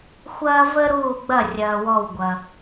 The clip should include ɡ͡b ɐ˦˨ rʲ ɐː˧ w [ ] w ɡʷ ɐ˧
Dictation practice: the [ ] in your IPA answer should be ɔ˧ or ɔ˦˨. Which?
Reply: ɔ˦˨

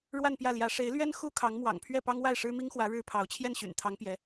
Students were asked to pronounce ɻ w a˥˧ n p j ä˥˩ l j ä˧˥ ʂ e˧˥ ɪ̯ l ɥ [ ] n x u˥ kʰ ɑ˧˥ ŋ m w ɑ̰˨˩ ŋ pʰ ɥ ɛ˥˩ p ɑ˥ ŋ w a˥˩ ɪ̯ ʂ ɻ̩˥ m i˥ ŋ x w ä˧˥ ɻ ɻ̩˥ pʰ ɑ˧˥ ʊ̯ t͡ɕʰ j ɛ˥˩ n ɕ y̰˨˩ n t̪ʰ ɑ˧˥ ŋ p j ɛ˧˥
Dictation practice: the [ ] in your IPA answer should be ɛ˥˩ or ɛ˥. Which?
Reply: ɛ˥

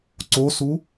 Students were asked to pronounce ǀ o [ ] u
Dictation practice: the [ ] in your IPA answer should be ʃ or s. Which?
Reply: s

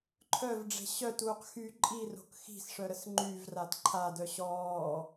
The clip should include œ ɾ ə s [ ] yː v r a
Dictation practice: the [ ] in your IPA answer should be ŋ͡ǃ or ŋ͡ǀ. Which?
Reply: ŋ͡ǃ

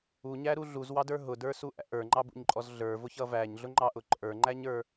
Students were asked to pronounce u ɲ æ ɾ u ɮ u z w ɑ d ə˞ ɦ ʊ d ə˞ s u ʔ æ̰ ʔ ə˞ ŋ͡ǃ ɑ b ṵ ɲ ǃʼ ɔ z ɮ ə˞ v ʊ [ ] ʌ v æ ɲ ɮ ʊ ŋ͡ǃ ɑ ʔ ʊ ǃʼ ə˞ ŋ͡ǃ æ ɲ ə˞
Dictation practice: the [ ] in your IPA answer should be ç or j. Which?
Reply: ç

